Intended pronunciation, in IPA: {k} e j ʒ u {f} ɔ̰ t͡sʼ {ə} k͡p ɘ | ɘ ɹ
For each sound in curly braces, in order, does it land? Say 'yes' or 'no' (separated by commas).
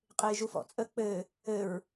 no, yes, yes